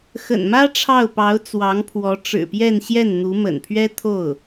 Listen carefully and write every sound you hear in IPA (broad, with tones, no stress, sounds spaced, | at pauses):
x ə̰˨˩ n m ä˥ ʈ͡ʂʰ ɑ˥˩ ʊ̯ p ɑ˧˥ ʊ̯ t͡s w ɑ˧˥ ŋ pʰ w ɔ˧˥ ʈ͡ʂ ɻ̩˨˩ p j ɛ˥˧ n ɕ j ɛ˥˩ n n̪ u˧˥ m ə̰˨˩ n pʰ ɥ ɛ˥ t̪ʰ o˥˩ ʊ̯